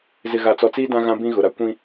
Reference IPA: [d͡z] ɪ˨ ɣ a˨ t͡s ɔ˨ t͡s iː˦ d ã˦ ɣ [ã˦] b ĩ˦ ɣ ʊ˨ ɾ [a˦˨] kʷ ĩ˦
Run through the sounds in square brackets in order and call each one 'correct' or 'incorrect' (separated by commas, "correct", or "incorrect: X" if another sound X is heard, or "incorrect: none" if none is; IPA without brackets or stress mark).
incorrect: z, correct, incorrect: a˦